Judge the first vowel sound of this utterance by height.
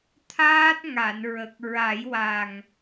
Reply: low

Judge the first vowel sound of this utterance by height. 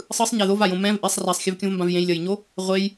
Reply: high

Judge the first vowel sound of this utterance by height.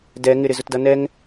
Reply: mid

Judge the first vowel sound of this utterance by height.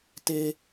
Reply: mid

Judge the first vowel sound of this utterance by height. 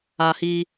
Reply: low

